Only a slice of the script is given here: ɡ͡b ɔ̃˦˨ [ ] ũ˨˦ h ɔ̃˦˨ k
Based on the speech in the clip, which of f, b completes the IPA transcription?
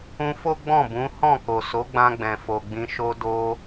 b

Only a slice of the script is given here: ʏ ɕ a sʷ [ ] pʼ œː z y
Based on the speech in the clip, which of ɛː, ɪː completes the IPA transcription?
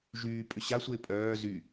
ɪː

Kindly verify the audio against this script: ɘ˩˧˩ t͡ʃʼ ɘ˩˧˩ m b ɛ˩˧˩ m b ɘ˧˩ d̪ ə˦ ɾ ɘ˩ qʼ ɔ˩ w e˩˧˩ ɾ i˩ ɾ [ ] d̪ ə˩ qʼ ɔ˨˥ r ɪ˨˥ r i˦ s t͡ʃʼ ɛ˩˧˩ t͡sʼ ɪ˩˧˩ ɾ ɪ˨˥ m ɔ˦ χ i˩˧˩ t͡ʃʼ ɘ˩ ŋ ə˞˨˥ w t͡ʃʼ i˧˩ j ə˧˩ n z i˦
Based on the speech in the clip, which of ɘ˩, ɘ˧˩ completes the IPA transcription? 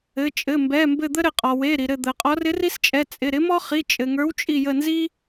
ɘ˧˩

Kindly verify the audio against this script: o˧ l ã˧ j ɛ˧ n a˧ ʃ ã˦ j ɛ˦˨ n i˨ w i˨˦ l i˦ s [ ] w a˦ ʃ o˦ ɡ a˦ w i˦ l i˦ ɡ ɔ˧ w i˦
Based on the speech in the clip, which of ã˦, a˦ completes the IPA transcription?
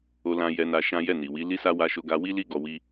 a˦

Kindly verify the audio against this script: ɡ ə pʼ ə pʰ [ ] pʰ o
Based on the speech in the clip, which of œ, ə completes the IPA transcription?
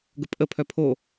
œ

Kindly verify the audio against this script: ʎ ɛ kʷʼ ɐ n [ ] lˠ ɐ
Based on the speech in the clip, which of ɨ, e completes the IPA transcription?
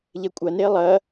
e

